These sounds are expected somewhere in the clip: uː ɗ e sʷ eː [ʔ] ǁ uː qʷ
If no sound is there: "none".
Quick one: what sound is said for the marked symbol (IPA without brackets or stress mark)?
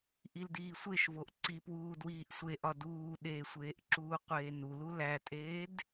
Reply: ʔ